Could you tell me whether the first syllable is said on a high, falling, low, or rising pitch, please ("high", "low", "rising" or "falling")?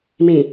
low